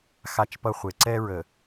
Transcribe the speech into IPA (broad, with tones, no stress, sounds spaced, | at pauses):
x a˦ t͡ʃ p ʌ˦ χʷ e˨ ǀ ɛ˦ ɹ ə˨